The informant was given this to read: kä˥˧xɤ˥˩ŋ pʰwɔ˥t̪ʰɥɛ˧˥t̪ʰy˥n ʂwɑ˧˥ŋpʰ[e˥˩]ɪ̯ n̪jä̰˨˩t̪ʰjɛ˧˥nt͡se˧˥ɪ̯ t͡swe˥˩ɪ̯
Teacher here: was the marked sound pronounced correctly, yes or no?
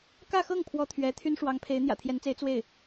no